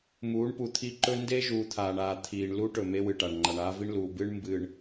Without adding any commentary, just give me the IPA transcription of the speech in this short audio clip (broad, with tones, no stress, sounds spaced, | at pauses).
m uː˨˦ ɳ p u˨ t̪ʰ i˦ ǃ ɵ˦ n d e˦ ʒ uː˨ t̪ʰ aː˨ ɳ aː˨ t̪ʰ iː˨ ɳ l u˦ ʈ ɵ˨ m e˦ w ɨ˨ ʈ a˨ ɳ ŋ͡ǃ a˨ ɳ aː˦ v i˦ ɳ l uː˨ b ɨ˦ ɳ m b ɨː˨ ɳ